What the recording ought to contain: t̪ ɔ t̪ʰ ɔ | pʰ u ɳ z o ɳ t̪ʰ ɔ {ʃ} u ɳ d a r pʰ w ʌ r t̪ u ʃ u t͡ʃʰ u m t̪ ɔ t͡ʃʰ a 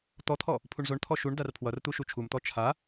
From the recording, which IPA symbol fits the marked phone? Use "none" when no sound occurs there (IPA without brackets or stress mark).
ʃ